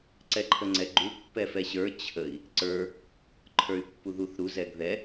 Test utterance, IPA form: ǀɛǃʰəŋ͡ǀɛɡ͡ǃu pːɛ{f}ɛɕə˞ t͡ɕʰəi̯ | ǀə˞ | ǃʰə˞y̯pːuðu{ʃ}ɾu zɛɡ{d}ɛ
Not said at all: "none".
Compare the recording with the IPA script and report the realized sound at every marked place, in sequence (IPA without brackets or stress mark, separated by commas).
f, θ, ð